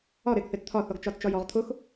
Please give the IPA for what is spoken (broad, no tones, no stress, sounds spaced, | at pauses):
ɒ ɾ e ɡ θ e t t̪ʰ ɒ θ ɔ ɡ t͡ʃ ɒ t t͡ʃ ɒ j ɔ ʁ t̪ʰ ʊ x